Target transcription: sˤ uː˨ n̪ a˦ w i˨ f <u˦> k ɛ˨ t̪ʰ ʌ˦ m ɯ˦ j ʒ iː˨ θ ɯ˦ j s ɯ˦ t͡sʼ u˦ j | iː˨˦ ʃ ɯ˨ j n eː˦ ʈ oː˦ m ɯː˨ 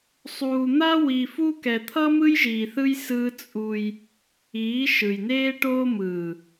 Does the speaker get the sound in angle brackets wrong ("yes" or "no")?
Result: no